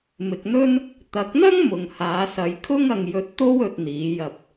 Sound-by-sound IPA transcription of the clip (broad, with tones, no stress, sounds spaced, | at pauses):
m ɪ˧ k̚ n̪ ɵ˥ n | t̪ ɐ˨˥ k̚ n̪ ɐ˥ ŋ m ʊ˨ ŋ h aː˨˧ s ɐ˨˧ j kʰ ʊ˥ ŋ ɐ˧ ŋ j ɵ˧ t̚ t̪ o˥ w ɵ˧ t̚ n̪ iː˨˥ j ɐ˧ p̚